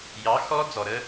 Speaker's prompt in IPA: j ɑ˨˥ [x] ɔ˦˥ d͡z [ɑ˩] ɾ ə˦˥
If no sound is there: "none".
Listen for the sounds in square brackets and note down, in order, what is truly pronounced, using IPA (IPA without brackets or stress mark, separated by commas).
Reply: x, ɔ˩